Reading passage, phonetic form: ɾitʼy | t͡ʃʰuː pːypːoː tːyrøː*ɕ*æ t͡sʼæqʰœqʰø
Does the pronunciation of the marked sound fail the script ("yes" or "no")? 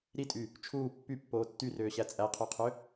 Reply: no